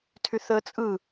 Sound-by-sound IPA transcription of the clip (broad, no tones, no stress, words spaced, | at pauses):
tʰyθəːt͡sʼɯ